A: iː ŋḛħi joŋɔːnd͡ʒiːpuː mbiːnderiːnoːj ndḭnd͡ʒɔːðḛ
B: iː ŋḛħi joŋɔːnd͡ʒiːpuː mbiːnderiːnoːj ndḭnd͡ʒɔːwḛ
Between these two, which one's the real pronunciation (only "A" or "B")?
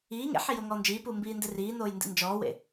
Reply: B